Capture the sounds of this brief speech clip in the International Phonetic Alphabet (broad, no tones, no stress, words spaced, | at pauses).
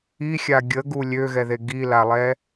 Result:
ixʲa ɡʲəɡu lʲøɣɛðe ɡilalˠɛ